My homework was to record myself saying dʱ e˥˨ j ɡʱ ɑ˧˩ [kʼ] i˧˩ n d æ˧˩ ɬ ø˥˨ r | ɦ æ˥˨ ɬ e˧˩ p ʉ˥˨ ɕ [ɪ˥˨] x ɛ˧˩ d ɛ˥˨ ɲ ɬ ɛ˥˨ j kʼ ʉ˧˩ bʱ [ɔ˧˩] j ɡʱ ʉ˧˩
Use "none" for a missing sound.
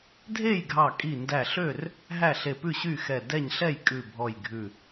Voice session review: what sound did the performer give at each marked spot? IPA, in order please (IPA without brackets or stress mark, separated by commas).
kʼ, y˥˨, ɔ˧˩